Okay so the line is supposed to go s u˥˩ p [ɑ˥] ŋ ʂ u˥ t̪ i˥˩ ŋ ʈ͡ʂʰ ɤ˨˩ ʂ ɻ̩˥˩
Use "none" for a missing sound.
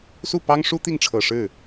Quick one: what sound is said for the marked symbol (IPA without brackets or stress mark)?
ɑ˥